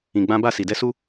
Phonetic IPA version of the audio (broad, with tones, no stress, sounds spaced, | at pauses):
ĩ˨ ɡ͡b ã˦ b a˦˨ s i˨ d ɛ˦ s u˦